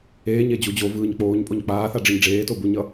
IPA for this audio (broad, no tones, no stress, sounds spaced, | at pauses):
eː ɲ e d͡ʑ u d͡ʑ o v ɯː ɲ k͡p oː ɲ pʼ o ɲ k͡p aː θ a ɖ͡ʐ ɯ ɲ ɖ͡ʐ eː t o b u ɲ ʌ